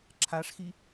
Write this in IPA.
ǁʰ a ʂ x i

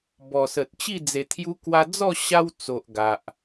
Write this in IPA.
b ɔ˨˩ s ə˨ t̚ t͡ɕ i˥˧ d͡z e˨˩ t̪ʰ j u˧ k w a˧ d͡z ɔ˥˧ ɕ a˦ w t͡s o˨ ʔ ɡ a˨ ʔ

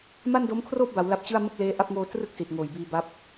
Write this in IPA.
m a˥˩ n d o˦˥ m kʰ r oː˥˩ p̚ b a˩˦ w l a˦˥ p̚ t͡ɕ ɯ˥˩ a̯ m ɯ˥˩ k̚ l eː˦˥ ʔ a˥˩ p̚ ŋ oː˧ t r ɯ˥˩ k̚ s i˨˩ t̚ ŋ oː˨˩ j b iː˧ b a˦˥ p̚

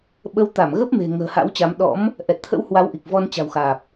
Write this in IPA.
ɓ ə˨˦ w t̪ a˧˩ m ɣ ə˦˥ p̚ m e̤˨˩ ŋ ə̤ː˨˩ h a̰˧˥ w t͡ɕ a˨˦ m ɗ ɔ̰˧˥ m | ʔ ɛ˨˩ t̚ t̪ʰ ə̰˧˥ w h w a˨˦ w ʔ i˨˩ k̚ v ɔ˧ n t͡ɕ a̤˨˩ w x aː˨˩ p̚

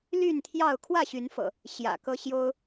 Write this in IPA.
l y˥˨ n t̪ʰ j ɑ˥˨ ʊ̯ kʰ w ä˥˨ ɕ y˨˦ n f ɤ̰˨˩ | ɕ j ä̰˨˩ k ɤ˦ ɕ j o˦ ʊ̯

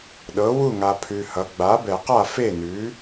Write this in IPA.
ɗ ɤ˩˥ w u˥˩ ŋ a˨ pʰ ʉ˨ h ʌ˩˥ ɡ͡b a˩˥ b ɛ˨˩˦ q a˥˩ f e˥˩ n ʉ˩˥

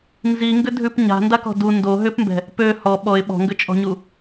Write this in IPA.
n z i ŋ ɡ ʏ dʱ ʉ p ɲ a̤ n d a k ɔ̤ d u n d o ɦ ʏ p m b ɛ̤ | p ø h ɔ ɓ ɔ ɪ̯ ɓ ɔ̤ ŋ ɡ ʏ t͡ʃʼ ɔ̤ ɲ u

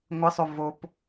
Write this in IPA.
ŋʷ ɪ sˤ o v o p

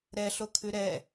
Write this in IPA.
ɾ ɛ ɬ o kʰ ʉ ɾ ɛ

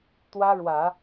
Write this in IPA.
t̪ w ä˥ ɻ w ä˨˩˦

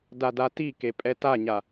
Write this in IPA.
d a d a t i k e pʼ ɛ t a ɲ a

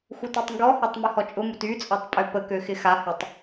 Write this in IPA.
x u t y tˤ ŋ ɡ ɔ h ɔ tˤ m y h ɔ t͡ʃʼ ʊ m u t y t͡sʼ ɔ tˤ pʼ ø p ə k ø x ɪ x a h y tˤ

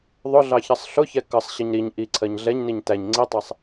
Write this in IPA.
ðˤ ʊ ɮ ɑ ç ʌ sˤ ɬ ʊ ç ɛ k ʌ sˤ ɕ ə ɲ ɾ i ɲ ʔ i ǀʰ ɜ ɲ ɮ ɛ ɲ n i ɲ t æ ɲ ŋ͡ǀ i tˤ ɜ sˤ

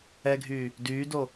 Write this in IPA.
ɛ ɡʱ yː | d yː d o

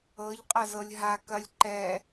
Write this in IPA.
ɤ ʎ qʼ ɐ z ɤ lʲ ɦ a k ɐ lʲ ǃ ɛ

